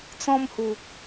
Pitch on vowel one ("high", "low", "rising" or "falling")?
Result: high